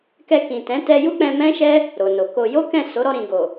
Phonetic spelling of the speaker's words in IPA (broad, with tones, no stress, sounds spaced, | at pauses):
k ɛ˧ k ĩ˨ t ɛ̃˨˦ t ɛ˧ j u˦ k͡p ɛ̃˧ m ɛ̃˦ ʃ ɛ˦ | ɾ o˨ n o˨ k o˧ j o˦ k ɛ̃˦˨ s o˨˦ ɾ ɔ˧ ɾ ĩ˨ ɡ o˨